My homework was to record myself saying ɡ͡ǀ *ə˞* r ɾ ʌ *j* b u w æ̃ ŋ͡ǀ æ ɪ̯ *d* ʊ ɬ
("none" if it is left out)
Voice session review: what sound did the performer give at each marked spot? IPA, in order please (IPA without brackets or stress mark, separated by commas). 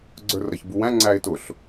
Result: ə˞, ç, t